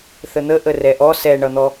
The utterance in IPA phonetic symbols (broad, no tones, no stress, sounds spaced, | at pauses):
θ ə n̪ ə ʔ ə r ɛ ʔ ɔ s ɛ ɳ ʌ n̪ ɔ